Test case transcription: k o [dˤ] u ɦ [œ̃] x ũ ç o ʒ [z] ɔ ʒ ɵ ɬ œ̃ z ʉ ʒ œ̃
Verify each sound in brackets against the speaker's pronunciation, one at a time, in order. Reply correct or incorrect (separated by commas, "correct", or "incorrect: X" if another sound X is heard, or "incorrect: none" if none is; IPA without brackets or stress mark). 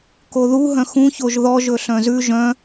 incorrect: ð, correct, incorrect: ð